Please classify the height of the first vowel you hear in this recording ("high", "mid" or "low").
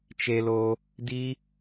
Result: mid